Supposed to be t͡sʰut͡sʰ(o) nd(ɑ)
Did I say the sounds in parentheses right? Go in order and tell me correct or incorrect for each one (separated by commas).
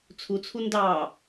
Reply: incorrect, correct